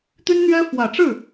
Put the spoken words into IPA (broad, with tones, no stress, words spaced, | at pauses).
t̪y˥nn̪ɥɛ˥ fwä˨˩ʈ͡ʂɻ̩˥˩